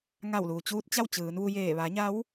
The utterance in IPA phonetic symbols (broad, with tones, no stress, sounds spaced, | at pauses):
ŋ a˧˩ w l uː˩ t͡ɕ uː˧ t̚ t͡ɕ a˥˨ w t͡ɕ ɯː˩˧ n ʋ u˧ j eː˧˩ ʋ a˩˧ ɲ a˧˥ w